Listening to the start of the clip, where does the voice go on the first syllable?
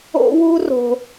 high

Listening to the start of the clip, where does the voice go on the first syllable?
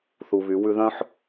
low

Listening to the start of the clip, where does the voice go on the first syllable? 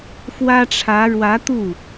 high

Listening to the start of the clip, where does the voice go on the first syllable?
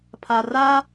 low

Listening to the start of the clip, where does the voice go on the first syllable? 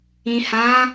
low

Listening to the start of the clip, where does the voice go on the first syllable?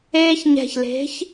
high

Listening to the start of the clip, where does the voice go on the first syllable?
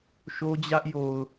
high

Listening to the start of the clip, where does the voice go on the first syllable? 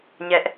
high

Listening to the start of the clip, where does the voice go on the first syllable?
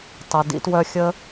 low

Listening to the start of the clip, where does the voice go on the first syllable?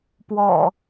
low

